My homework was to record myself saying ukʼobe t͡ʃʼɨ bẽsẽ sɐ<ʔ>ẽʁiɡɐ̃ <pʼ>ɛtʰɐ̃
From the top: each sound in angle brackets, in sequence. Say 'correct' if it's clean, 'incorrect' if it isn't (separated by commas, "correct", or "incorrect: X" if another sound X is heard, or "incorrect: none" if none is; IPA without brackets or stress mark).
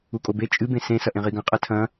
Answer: correct, incorrect: qʼ